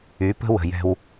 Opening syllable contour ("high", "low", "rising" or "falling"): rising